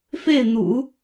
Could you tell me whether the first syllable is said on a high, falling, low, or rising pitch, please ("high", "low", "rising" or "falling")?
falling